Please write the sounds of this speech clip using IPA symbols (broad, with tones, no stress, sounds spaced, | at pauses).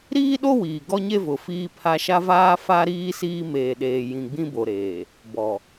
ɾ iː˦ ɗ o˦ w iː˨ ɡ ɔ˦ ɲ e˦ v ʊ˨ f iː˦ pʰ a˦ ʃ a˦ v aː˦ f a˦ ɾ iː˦ s iː˦ m eː˨ ɗ eː˨ j ĩ˨ ɡ͡b ĩ˦ b o˨ ɾ eː˨ | b ɔ˨